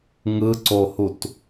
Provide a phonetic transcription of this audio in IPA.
ŋ ɯ ǀ o h u t

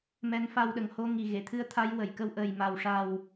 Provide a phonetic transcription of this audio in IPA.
m ɛ˧˥ n f a˧ w ɗ ə˨˩ ŋ h o˧ ŋ i˨˩ ɣ e˨˩˨ t̪ʰ ɨ˧˥ ə̯ t̪ʰ a˧˥ j w ə˨˩˨ j k ə˧ w ʔ əː˨˩ j m a˨˩ w ʂ a˨˩ w

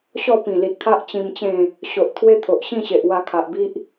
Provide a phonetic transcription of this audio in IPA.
ɕ ɔ˥˧ p ĩ˨˩ l i˨ t̚ t̪ʰ a˦ ʔ t͡ɕ ĩ˧ m t͡ɕ ẽ˥˧ | ɕ o˨ ʔ t̪ʰ w e˦ t̪ʰ o˨ ʔ ɕ ĩ˥˧ ɕ e˨ ʔ w a˧ kʰ a˨ ʔ b i˦ ʔ

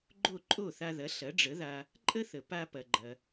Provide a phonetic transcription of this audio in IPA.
ɡ͡ǃ o˥˩ ǃʼ o˥˩ θ a˧ ð ɐ˩˥ ɬ ɐ˩˥ ɖ͡ʐ ə˩˥ ð a˧ | ǃʼ ə˥ θ ə˩ p a˧ p ɐ˩ ɡ͡ǃ ɐ˩

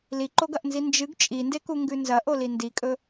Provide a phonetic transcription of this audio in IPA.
l i ǃ o ɡ ɐ ʔ n z i n d͡ʒ ɨ ɡ t͡ʃʼ i n d e k u ŋ ɡ ʉ n z ɐ ʔ o l i n d i kʼ ɵ

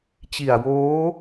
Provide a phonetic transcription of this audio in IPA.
t͡ɕ i˨˩ a̯ w oː˦˥

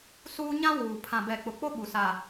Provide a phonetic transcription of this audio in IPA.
s uː˦ ɲ ã˦ w uː˨ pʰ ã˨ b ɛ˨ k͡p ʊ˨ k͡p o˦ ɓ u˨ s a˨

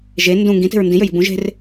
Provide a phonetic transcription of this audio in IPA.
ʒ e n d ũ ŋ ɡ ĩ t e̤ ɹ n d ĩ j ø j i̤ b ũ ʒ e̤ r

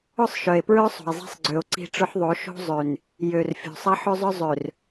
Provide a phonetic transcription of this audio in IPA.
ʊ˦˨ sˤ ʃ œ˨ e̯ p ɹ œ˦ sˤ o̤˨ e̯ zˤ i̤˦ sˤ ɡ͡ǀ ø˨ o̯ ǀ i̤˦ ʈ͡ʂ ʊ˦ ħ ðˤ o˨˦ ʃ o̤˦ zˤ ø˨ n | j ø˨ r fʲ o̤˨ sˤ ɐ˦ ħ ø˦ zˤ œ˦ zˤ ø˨ r

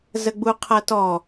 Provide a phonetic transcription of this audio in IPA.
z ə ɡ͡b u qʰ ɐ t ɔ

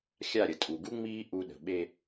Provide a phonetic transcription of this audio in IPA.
xʲ a˦˨ ɾʲ ə˨ tʼ u˨ ɡ u˦ ŋ͡m iː˦ ʔ u˦ ɗ ə̤˨ ɓ e˦

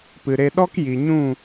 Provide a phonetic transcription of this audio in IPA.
p ɨ˨ ɾ e˧ ɗ ɔ˦ k j i˨ ɲ ũ˦˨

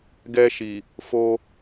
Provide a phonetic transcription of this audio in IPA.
ɡ ɛ˧ ʃ i˨ | f o˧

